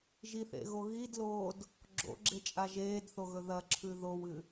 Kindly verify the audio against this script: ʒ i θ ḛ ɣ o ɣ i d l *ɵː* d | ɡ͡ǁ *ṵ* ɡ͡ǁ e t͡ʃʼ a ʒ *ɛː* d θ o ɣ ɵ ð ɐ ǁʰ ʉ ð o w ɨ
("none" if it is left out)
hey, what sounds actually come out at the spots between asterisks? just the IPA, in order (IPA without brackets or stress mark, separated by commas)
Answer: oː, o̰, eː